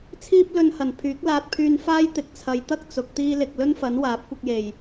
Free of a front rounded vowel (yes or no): no